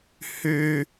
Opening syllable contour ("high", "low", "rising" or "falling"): high